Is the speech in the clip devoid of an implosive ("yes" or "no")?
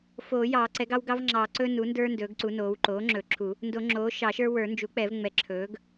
yes